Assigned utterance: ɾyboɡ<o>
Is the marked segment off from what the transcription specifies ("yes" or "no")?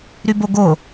no